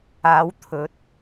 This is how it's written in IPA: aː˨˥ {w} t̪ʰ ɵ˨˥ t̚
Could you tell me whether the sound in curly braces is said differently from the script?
no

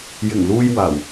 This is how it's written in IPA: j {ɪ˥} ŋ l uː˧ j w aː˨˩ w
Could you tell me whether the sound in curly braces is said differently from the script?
yes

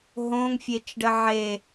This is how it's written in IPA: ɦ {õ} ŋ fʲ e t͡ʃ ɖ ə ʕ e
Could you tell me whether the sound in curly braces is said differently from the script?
no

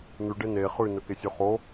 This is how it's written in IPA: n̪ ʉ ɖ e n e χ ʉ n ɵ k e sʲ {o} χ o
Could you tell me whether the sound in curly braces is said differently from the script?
no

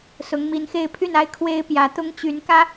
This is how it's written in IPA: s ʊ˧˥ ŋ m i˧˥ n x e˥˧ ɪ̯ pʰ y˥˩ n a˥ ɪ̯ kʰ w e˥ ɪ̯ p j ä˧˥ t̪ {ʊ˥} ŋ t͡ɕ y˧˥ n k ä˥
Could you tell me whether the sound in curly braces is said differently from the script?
no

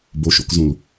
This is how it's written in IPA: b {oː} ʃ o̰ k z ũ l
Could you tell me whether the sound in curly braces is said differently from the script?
yes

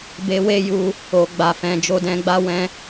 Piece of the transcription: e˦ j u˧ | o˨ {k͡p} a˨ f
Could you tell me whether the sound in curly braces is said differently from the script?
yes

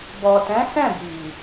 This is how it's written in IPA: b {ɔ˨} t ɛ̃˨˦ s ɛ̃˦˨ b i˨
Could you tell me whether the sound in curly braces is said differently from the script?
no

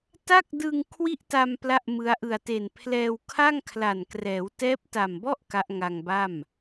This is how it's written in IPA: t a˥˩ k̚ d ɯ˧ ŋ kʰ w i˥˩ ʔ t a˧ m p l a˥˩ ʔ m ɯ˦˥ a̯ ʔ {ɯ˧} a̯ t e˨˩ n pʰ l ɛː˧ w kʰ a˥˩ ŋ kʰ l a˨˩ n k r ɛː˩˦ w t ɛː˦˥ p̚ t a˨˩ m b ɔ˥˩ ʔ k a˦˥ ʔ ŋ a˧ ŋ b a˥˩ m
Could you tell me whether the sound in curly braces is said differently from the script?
yes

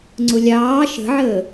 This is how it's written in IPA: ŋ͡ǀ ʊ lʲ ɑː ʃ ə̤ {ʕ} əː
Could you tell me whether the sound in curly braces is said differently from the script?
no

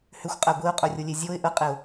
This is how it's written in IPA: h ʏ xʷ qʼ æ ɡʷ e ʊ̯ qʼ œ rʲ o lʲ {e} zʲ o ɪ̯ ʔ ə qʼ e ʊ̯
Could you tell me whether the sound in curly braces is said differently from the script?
no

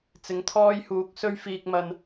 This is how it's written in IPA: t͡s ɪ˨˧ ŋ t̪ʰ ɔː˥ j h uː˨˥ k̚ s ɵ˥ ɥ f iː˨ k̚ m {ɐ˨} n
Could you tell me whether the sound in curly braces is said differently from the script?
no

